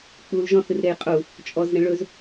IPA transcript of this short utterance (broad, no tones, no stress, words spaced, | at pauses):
k͡pul ʒɔ̃θɨr ɾejqʼu | t͡ʃʼɔz ɾẽɭɵz